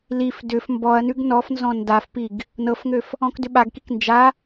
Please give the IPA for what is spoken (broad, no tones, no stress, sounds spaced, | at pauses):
l i f d ʏ f m b ɔ ɐ̯ n ʉ ɡ n ɔ f n z ɔ̃ n d a f p i ɡ | n ɤ f ŋ ø f | ɔ̃ k d ʏ ɓ a ɡ k i k n d͡ʒ a